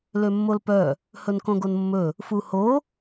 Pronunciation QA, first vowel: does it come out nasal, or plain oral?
oral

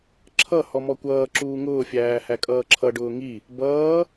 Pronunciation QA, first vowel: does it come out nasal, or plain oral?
oral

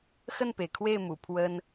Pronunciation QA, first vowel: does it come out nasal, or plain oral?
oral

